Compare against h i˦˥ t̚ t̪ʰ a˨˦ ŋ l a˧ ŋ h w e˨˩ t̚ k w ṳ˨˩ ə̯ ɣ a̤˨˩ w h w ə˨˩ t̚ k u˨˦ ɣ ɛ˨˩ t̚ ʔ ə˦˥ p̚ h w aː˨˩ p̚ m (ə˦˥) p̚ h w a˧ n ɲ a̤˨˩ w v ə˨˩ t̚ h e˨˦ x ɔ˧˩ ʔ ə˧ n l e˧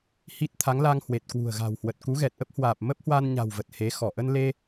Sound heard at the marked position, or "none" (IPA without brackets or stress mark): ə˦˥